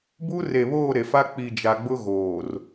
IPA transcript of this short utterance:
b u˦ r e˨ β oː˦˨ ɾ e˨ f a˦ k͡p i˨ d͡ʒ a˨ ɡ͡b ʊ˦ ɣ oː˨ r

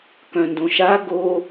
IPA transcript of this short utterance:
k œ̃ n d õ ʃ a ɡ o

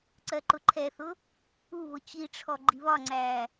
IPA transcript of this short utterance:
ǀ ɜ ǃ ʊ ǃʰ ɛ θ ʊ | u β ʊ t͡ɕ i ʈ͡ʂʰ ɔ ɡ͡ǃ i β ɒ ŋ͡ǀ æː

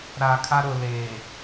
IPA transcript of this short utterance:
ɾ aː˨ kʰ a˦ ɾ ʊ˨ l eː˨

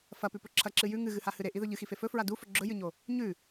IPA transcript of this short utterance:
f ɐ p ʉ p ɵ ǁʰ ɐ ǁ ɨ j ʉ ŋ ɨ ɣ ɨ h a h ɨ ɾ e ʔ i ð ɵ ʎ ɨ x i f e f ɵ f ɹ a d u f ɵ ɡ͡ǁ ɵ j ɨ ɲ o | ɲ ʉ

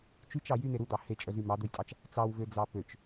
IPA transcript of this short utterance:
t͡ʃ y t͡ʃ ɑ j y n̪ e ɾ u d̪ ɑ h e t͡ʃʼ œ z y m ɑ d̪ ɵ j tʼ ɑ t͡ʃ | t͡s ɑ w v ø d͡z ɑ p ø t͡ʃ

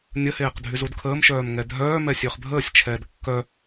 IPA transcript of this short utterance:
nʲ ə h eː q dʱ y z u d kʰ əː m ʃ œː m ŋ ɛ dʱ œː m ɛ sʲ ø χ bʱ əː sʲ t͡ʃʰ ɛː d kː œ

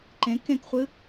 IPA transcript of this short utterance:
ǃ ẽ k ẽ k χʷ ɨ

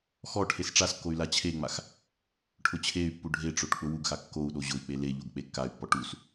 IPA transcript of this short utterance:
x ɔ ʈʰ e s ʈ͡ʂ a s kː o y̯ l a t͡ɕʰ e ŋ͡m a x | ʈʰ ʊ t͡ɕʰ e y̯ pː u ɖʱ e ʈ͡ʂ o ʈ k͡p ʊ w u ɡ x a kː o u̯ ɗ o ʑ ʊ i̯ k͡p e l e ʎ o ɡ k͡p e kː a y̯ pː ɔ ʈ u s

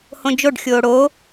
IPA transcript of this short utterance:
h õ d͡ʒ o ɖ xʲ oː ɽ oː

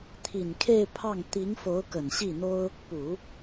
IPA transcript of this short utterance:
t̪ʰ i˨˩ n kʰ e˥˧ ɪ̯ pʰ ɑ˥˩ ŋ t̪ i˧˥ ŋ f o˧˥ ʊ̯ k ə˨˩ n ɕ i˥˩ n̪ o˥ ʊ̯ | p u˨˩˦

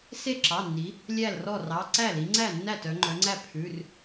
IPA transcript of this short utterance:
s e˥˩ ǁ ɑ˩˧˩ nː i˩˧ | lʲ æ˥˩ l r ɔ˥˩ r ɑ˩˧˩ ǀ æ˥˩ l i˩˧ ŋ͡ǀ æ˥˩ nː æ˥˩ t œ˩˧ ŋ͡ǃ œ˩˧ ŋ͡ǀ æ˥˩ pʰ ʉ˩˧˩ r

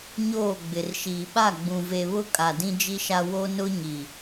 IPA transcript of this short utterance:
ɲ oː˦˨ ɡ͡b ɪ˨ r ʃ iː˨ ɓ a˦˨ ɡ͡b ũ˨ v e˨ β ʊ˦ kʼ a˨ d ĩ˦ d͡ʒ i˦ ʃ a˦ w o˦ n ʊ˦ ɲ i˨

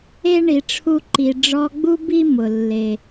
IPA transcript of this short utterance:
e˥ ɳ i˨ ʈ͡ʂʰ u˦ ǃ i˨ ɖ͡ʐ ɔ˦ ɡ͡b u˥ b i˥ m ʊ˩ lː e˩

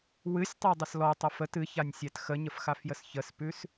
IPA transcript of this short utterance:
w ɨ sʲ tˤ a dˤ ə s l ɔ tˤ ə f ə t ɨ ç a nʲ sʲ æ t x ə ɲ ə f x a f j ə s ç ə s p ʉ s

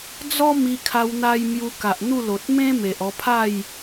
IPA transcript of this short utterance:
d͡z ɔ˦ m i˧ kʰ a˧ w n̪ a˧ j m j u˧ k a˨ ʔ n̪ u˥˧ l o˨ t̚ m ẽ˦ m e˨ ʔ ɔ˧ pʰ a˥˧ j

